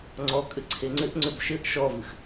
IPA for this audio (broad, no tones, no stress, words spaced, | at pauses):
ŋ͡ǀɔkʼɘ ǀʰeŋ͡ǀɘʔŋ͡ǀʏb ʃɘʔ ʃɔvɨx